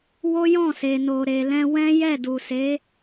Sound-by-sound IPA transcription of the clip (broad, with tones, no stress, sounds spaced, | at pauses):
w o˦ j ɔ̃˦˨ s e˨ n o˨ ɾ e˨ l ɛ̃˧ w ɛ̃˦ j ɛ˦˨ d u˨ s e˨˦